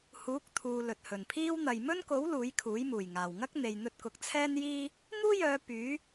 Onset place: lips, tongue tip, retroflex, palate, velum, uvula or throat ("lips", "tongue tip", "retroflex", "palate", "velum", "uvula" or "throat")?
throat